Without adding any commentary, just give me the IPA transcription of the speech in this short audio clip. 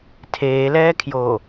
tʰ eː l ɛː kʰ j oː

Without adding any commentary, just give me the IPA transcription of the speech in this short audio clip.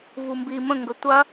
v u m b i m ə̃ ŋ ɡ ə tʷ ɐ

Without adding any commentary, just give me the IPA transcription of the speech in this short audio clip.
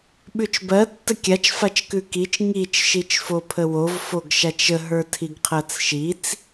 ɓ ʉ t͡ʃ b ɜ tː ə kʲ a t͡ʃ f a t͡ʃ k ʉ k i t͡ʃ ŋ i t͡ʃ ʃ i t͡ʃ f o pʰ ə w o v f o ɡ ʃ a t͡ʃ ə ɦ ə˞ tʰ i ɡ qʰ ɜ t͡s ʃ i t͡s

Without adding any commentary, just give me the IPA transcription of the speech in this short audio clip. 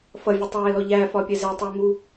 f ʌ vʲ ʊ tˤ ɛː l ɔ ʎ æ f ɒ pʲ ɛ z æ tˤ ʊː m u

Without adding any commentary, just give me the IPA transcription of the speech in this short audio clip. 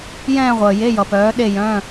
j ɛ̃ː˥˧ ʁʷ əː˩ j e˧˥˧ j ʌ˩ p œː˩˥ ɗ e˥˧ j œ̃˧˥˧

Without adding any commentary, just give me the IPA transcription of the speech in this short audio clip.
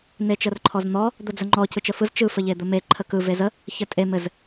n e t͡ʃ ə r ǃʰ ɔ z n̪ ɔ | d̪ ə d͡z ə ŋ͡ǃ ɔ c ɯ t͡ʃ ə f ɯ z t͡ʃ ɯ f ə ʎ e d̪ ə m e ǃʰ ə k ɯ v e z ə | ç ɘ tʼ e m ɘ z

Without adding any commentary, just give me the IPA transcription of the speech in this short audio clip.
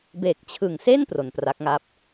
b e˨˩ k̚ t͡ɕʰ ɯ˨˩ ŋ s e˥˩ n p r o˨˩ n p r a˦˥ k̚ ŋ a˥˩ p̚

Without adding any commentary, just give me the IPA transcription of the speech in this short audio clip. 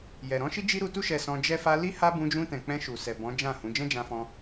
j ɛ˨ ɾ ɔ̃˨˦ ʃ i˦ d͡ʒ i˦ ɾ u˧ t u˦ ʃ ɛ˧ s ɔ̃˧ d͡ʒ ɛ˧ f a˧ l i˦ h a˦ b ũ˧ d͡ʒ ũ˧ t ɛ̃˨ k͡p ɛ̃˧ ʃ u˨ s ɛ˨ b ɔ̃˨˦ d͡ʒ ã˦˨ h ũ˨˦ d͡ʒ ɛ̃˦ d͡ʒ ã˧ f ɔ̃˧

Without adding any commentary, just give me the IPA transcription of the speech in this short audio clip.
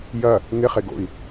j ɐ | ŋ ɪ χ e ɡ o̰ i̯

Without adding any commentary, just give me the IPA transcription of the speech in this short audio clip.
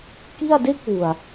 k i˥˩ a̯ d e˥˩ k̚ w u˨˩ a̯

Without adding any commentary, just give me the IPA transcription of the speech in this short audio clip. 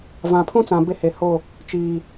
v ã˨ pʰ ũ˦ t͡s ã˨ b e˦ h e˨ h o˦˨ | t͡ʃ iː˨

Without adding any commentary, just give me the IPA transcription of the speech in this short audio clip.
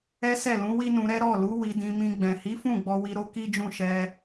ɛ˦ s ɛ˦˨ l ũ˨˦ w i˦ n ũ˧ ɾ ɛ˦ ɾ ɔ˦˨ l u˨˦ w i˧ d ĩ˧ m ĩ˧ ɡ͡b ɛ̃˨ h i˨˦ f ũ˦˨ ɡ͡b ɔ˧ w i˧ ɾ o˧ k i˦ d͡ʒ ũ˦˨ ʃ ɛ˧

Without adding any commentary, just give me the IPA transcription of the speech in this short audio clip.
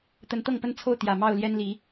t̪ ə˨˦ n t̪ ɤ˥˨ ŋ p ə˦ n t͡sʰ o˥˨ ʊ̯ t̪ j ä˨˩ m ɑ˥˨ ʊ̯ l j ɛ˦ n l i˨˦

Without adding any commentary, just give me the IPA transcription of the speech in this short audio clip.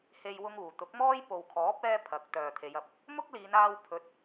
h e˥ j w ʊ˥ ŋ uː˨ t̪ ʊ˨˥ k̚ m ɔː˥ j p o˨ w kʰ ɔː˨˥ p̚ ɛː˥ pʰ ɐ˨˥ k̚ t̪ œː˨ t̪ʰ e˨˧ j ɐ˨ p̚ | m ʊ˥ k̚ l iː˨˧ n aː˧ w pʰ ɵ˨˥ t̚

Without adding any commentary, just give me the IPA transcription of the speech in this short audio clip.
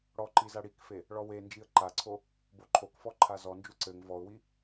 ɽ ɔ ǃ i z a ɽ i k f e | ɭ ɔ w e n d͡ʒ i ə̯ ǃ a ǀʰ o | b o ǃʰ o k f ɔ ǃʰ a z ɔ n d͡ʒ u ǀ ɘ ŋ v ɔ ʊ̯ w i

